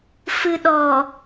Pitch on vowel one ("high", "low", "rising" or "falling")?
low